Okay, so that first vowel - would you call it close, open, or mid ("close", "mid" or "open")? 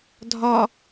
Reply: open